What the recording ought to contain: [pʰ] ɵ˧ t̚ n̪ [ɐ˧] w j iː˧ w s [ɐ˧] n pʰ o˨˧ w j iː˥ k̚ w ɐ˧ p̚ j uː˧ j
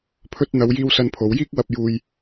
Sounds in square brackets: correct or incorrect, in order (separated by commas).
correct, incorrect, correct